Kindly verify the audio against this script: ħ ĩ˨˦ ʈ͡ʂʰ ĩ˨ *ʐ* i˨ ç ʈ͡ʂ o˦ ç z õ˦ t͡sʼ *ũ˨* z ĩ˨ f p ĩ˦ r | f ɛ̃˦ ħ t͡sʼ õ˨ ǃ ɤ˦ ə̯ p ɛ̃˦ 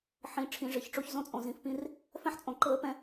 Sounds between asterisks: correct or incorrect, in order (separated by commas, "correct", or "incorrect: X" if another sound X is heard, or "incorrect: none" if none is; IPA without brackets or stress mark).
correct, incorrect: õ˨